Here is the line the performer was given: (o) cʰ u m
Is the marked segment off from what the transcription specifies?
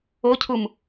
no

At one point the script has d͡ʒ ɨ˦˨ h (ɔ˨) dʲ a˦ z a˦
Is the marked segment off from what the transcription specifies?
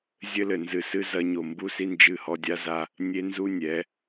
yes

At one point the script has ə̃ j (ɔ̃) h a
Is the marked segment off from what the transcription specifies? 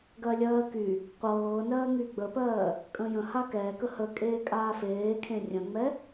yes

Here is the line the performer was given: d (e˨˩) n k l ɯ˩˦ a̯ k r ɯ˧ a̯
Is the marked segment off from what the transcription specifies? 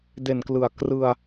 no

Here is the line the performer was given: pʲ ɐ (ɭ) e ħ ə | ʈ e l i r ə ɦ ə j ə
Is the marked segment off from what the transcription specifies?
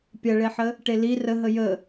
no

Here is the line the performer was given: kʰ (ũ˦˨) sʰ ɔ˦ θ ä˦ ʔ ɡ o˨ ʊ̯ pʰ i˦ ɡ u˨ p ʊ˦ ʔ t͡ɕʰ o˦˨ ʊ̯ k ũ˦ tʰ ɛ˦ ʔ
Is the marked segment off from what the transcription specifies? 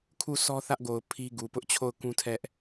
yes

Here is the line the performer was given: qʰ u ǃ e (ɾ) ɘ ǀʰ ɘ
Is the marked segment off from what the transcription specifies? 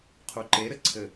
no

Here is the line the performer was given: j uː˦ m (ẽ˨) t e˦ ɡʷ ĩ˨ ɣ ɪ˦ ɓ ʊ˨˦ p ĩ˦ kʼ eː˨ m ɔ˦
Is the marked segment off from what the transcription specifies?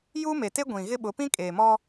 yes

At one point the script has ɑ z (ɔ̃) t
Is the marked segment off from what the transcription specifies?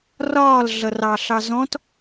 no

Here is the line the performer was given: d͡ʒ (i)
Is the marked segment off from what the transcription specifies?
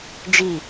no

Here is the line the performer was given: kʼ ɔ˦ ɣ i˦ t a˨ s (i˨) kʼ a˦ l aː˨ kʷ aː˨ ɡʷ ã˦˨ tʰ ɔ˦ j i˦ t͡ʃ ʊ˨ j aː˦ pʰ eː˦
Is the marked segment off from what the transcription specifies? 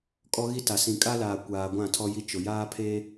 yes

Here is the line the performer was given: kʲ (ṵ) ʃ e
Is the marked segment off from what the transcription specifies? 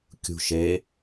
yes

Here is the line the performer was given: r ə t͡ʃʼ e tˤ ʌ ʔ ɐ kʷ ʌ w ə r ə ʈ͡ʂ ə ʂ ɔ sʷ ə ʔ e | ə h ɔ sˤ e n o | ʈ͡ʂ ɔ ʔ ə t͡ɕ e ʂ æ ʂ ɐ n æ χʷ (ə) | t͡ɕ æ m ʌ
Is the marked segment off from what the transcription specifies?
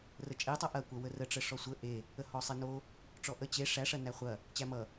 yes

